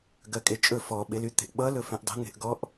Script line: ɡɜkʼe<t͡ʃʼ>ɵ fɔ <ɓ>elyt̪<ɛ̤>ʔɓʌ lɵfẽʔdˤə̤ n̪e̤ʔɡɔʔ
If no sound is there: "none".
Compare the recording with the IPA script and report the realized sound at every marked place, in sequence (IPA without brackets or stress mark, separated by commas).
t͡ʃʼ, ɓ, e̤